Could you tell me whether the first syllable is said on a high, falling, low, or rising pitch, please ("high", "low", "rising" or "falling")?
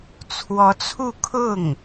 rising